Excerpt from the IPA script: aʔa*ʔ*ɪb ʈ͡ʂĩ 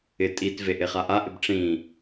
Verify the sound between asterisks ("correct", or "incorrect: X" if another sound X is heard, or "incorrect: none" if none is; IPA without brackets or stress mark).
correct